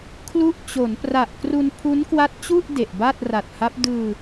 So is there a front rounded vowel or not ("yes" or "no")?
no